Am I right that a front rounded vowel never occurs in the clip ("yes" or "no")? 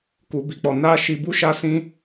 yes